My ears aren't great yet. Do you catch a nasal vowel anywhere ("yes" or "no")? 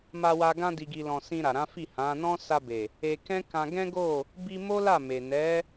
yes